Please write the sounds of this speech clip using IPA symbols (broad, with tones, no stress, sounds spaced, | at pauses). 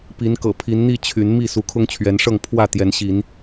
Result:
p i˨˦ n k ɤ̰˨˩ pʰ i˨˦ n n̪ i˥˨ t͡ɕʰ y˨˦ n m i˥˨ s u˨˦ kʰ ʊ˦ ŋ t͡ɕʰ ɥ ɛ˨˦ n ʂ ɤ˥˨ ŋ pʰ w ä˥˨ t̪ j ɛ˨˦ n ɕ i˨˦ n